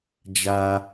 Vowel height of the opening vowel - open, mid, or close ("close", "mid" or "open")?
open